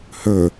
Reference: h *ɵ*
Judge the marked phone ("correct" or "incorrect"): correct